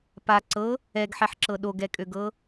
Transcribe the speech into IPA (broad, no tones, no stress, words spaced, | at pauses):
pa ǀɤ | ɛɡħɛħǁɤ ɗoɡɛkʼøɡɤ